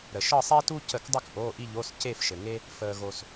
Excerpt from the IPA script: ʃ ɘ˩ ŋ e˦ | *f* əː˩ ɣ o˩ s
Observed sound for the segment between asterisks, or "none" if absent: f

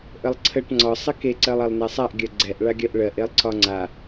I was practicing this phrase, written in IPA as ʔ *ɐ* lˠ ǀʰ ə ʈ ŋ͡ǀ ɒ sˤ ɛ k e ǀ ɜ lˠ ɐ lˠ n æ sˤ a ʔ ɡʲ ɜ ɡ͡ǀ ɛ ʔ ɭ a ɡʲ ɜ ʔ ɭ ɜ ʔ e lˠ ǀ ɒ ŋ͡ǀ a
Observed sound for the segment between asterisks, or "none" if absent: ə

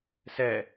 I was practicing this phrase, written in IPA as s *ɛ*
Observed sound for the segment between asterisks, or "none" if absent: ɛ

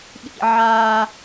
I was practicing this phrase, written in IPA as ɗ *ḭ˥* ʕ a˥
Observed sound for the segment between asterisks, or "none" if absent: ḭ˥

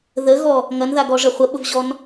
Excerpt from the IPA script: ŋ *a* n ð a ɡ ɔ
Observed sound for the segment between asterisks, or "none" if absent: ɐ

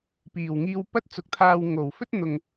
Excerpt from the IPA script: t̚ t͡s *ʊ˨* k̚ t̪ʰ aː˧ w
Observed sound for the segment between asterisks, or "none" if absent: ʊ˨˥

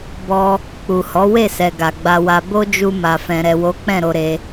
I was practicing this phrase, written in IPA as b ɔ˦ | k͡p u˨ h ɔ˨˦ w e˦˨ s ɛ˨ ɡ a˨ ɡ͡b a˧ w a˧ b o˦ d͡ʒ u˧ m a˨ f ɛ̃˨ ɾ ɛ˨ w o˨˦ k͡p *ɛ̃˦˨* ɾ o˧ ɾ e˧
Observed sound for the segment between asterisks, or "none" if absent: ɛ̃˦˨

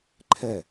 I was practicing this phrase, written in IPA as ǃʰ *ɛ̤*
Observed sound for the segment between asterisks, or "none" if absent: ɛ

